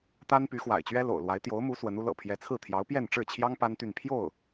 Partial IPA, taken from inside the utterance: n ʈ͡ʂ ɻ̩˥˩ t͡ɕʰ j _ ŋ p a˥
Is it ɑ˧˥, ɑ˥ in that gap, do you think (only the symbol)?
ɑ˥